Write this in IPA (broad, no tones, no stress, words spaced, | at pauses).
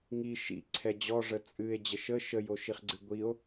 ŋi ʃḭ ǀʰɛd͡ʑɔ ʐət͡sʼɨe̯ d͡ʑəʃə ʃəj oʃiχɡ͡ǀɨɡʷio̯